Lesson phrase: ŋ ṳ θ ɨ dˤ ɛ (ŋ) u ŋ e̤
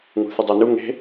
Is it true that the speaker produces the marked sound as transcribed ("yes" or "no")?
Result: no